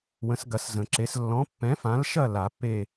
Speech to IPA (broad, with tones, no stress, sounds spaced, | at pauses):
w ə̃˨˥ s ɡ ɐ˨˥ s z ə̃˨˩˦ ǁ e˨˥ s lː ɔ̃˨˥ pː ɛ̃˨˥ f ã˨˥ l ʃ ɐ˥˨ l a˨˩˦ pː e˥˨